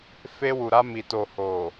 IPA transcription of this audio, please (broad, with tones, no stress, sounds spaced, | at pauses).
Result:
f e˧ w u˨ ɾ a˧ m i˨ t o˨ h o˨